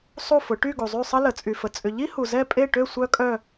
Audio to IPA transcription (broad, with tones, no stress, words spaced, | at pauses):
sˤu˥˧fʊ˨˦ʈy˥˧ ɡu˨zˤy˥˧sˤə˥ lə˨ t͡sʼy˨fə˨ t͡sʼʏ˨ʎi˥hu˨ zɛ˥˧pʼe˥˧ʈø˥˧ sʷœ˥kʼœ˥˧